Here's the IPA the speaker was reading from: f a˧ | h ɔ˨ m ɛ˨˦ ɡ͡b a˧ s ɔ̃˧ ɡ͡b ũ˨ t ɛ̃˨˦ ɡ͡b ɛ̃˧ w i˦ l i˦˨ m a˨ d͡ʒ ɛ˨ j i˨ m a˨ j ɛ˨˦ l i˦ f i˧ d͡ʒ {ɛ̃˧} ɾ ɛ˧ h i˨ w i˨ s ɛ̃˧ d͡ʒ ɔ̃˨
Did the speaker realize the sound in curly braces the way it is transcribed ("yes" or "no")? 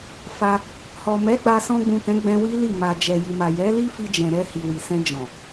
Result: no